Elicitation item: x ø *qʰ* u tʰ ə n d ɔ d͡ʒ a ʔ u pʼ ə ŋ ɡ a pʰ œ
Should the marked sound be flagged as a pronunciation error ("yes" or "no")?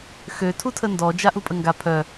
yes